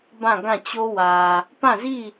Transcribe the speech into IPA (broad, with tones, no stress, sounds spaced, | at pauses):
b ã˦˨ ɡ ã˦˨ t͡ɕ o˦ w ä˨ | p ã˦˨ z i˦˨